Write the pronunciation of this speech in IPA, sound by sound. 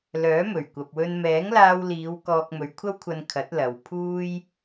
l œː˨˥ m ɵ˨˩ ɥ kʷ ɐ˨ p̚ w ɵ˧ n m ɛː˨˥ ŋ l aː˧ w l iː˨˧ w k ɔː˧ k̚ m ɵ˨˧ ɥ kʷʰ ɐ˥ w kʷʰ ɐ˧ n kʰ ɐ˨˥ t̚ l ɐ˨ w pʰ uː˥ j

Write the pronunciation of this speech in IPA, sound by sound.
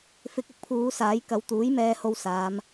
f ɪ˧ k̚ ʊ˥ k̚ pʰ uː˨˧ s aː˨˥ j k ɐ˨˧ w t̪ uː˨˥ j m ɛː˧ h o˧ w s aː˨˧ m

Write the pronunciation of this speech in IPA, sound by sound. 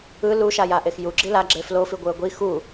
ɯ l u ʃ a j a ʔ e x j u ɡ͡ǁ i l a ɡ͡ǁ e f l o f i ɡʷ ɯ ə̯ ɡʷ i x u

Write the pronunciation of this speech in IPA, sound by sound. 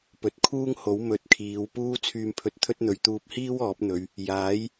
p ɵ˨˥ t̚ kʰ uː˥ ŋ h o˨˥ w m ɵ˨˥ t̚ kʰ iː˨˧ w p uː˥ t͡sʰ yː˧ m pʰ ɵ˨˥ t̚ t̪ʰ ɵ˥ t̚ n̪ ɵ˨ ɥ t̪ uː˧ p̚ h iː˥ w ɔː˨˥ p̚ n̪ ɵ˨˧ ɥ | j aː˨˥ j

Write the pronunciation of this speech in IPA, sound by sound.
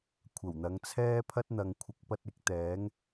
kʷʰ ɐ˨˩ w n̪ ɐ˨˧ ŋ t͡sʰ ɛː˥ pʰ ɐ˥ t̚ n̪ ɐ˨ ŋ kʷʰ ɪ˨˥ k̚ p ɐ˧ t̚ ɪ˧ k̚ t̪ ɛː˨˥ ŋ

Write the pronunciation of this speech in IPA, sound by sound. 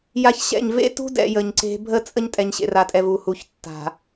j a˦ ç ɕ ɛ̰˦˨ ɲ v ḛ˦ t ṳ˦ d ɛ̰˨ j ə˨ ɲ ǀ e̤˦ bʱ ə˦ t͡sʼ ə˦ ɲ tʼ ɛ˨ ɲ ɕ ḛ˨ r a˨ tʼ ɛ˨ v u˨ h u˨ ç tː a̤˨

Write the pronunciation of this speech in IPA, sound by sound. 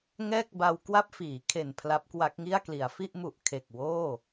ŋ ɛː˥˩ k̚ b a˧ w k w a˥˩ p̚ f iː˩˦ kʰ e˨˩ n pʰ l a˦˥ p̚ k w a˦˥ k̚ ŋ i˥˩ a̯ k l i˩˦ a̯ f i˥˩ ʔ m u˨˩ ʔ kʰ e˨˩ k̚ w oː˥˩

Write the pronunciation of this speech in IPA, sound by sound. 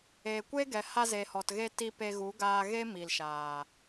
e˨ kʷ e˦ ɡ ɛ˨ h a˧ z e˨ h ɔ˨ t ɣ e˧ t i˧ p e˧ ɣ u˨˦ ɡ aː˧ ɣ e˦ m i˨ l ʃ aː˨

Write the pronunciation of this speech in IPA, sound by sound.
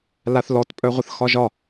l a θ l ɔ t pʼ œ ʁʷ ə θ x ɒ ʒ ɒ

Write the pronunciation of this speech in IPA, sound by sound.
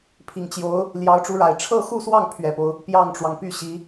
pʰ i˨˩ ŋ t͡ɕ j o˧˥ ʊ̯ | l j ɑ˧˥ ʊ̯ ʈ͡ʂ u˧˥ ɻ a˨˩ ɪ̯ ʈ͡ʂʰ ɤ˥˧ x u˥˧ s w ɑ˥˩ ŋ pʰ ɥ ɛ˨˩ p o˦ ʊ̯ | p j ɑ˥˩ ŋ ʈ͡ʂ w ɑ˩ ŋ p y˥˩ ɕ i˧˥

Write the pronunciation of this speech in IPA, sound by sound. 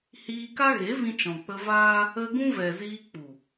h iː˧ k a˦ ɣ e˨˦ v ĩ˧ t͡ʃ ɔ̃˨ k͡p ə˧ v aː˦ | ə˧ ɡ ũ˦ v ɛ˨ z iː˧ k͡p u˨

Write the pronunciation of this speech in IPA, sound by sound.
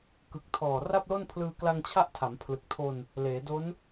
k ɯ˨˩ k̚ tʰ ɔː˨˩ r a˥˩ p̚ l o˥˩ n pʰ l ɯː˧ k l a˧ ŋ t͡ɕʰ a˦˥ ʔ tʰ a˩˦ m pʰ l ɯ˨˩ k̚ tʰ o˧ n | l eː˩˦ d o˦˥ n

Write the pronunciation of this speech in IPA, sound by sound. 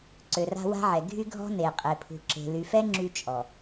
ǀ ø˨ r a̤˦ w a̤˦ ʕ ɛ˨ ɡʱ y˦ ɡʱ ɔ̤˦ n e˨ qʼ e˨ pʰ ṳ˨ ǁ e̤˨ l y˨ f ɛ˦ ŋ͡ǁ y˦ t͡ʃʼ ɔ˨

